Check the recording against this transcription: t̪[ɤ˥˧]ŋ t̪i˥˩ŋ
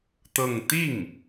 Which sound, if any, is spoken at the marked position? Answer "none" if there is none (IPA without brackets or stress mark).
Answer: ɤ˥˧